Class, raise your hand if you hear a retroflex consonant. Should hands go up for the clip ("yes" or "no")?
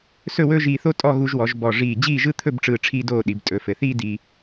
yes